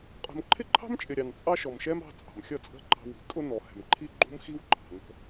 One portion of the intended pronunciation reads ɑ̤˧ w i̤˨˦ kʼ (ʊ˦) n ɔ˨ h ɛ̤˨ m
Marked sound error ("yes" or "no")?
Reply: no